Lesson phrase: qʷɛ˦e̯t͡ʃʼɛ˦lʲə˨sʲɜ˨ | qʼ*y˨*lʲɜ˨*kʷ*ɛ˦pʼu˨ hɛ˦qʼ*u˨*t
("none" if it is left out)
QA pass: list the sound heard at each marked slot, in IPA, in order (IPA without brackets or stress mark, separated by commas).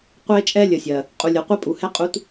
u˨, qʷ, u˦